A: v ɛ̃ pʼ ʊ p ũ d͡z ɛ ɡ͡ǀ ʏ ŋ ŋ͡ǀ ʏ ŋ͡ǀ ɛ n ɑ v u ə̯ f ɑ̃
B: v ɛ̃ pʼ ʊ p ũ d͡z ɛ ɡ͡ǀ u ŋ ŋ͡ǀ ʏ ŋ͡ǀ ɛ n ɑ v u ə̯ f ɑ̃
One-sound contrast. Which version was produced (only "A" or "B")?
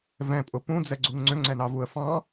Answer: B